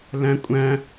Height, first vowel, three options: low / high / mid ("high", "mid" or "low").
low